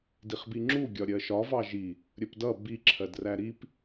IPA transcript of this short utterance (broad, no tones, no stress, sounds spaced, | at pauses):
d i χ b i ŋ͡ǁ u ɡʲ ɒ ɾʲ ɜ ʃ ɒ v ɑ ʒ i | ɾʲ ə p d ʌ b i ǁʰ ɜ d r æ ɾ i p